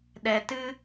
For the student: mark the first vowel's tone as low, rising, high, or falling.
low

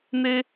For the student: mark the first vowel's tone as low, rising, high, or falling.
high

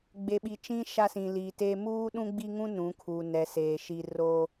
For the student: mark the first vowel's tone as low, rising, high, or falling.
low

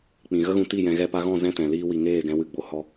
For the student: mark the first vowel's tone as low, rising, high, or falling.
low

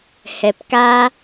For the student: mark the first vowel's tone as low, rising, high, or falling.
low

